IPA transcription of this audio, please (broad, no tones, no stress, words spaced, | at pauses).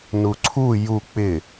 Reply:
nuǀʰu ju k͡pɪ